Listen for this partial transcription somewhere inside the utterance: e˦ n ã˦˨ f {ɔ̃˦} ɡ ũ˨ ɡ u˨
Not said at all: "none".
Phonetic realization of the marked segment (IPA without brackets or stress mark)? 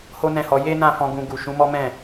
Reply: ɔ̃˧